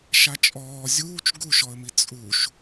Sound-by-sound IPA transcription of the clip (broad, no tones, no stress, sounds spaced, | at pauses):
ʃ a t͡ʃʼ ɔː zʲ uː t͡ʃ ɡ u ʃ ɔ ə̯ m i t͡sʼ u ʃ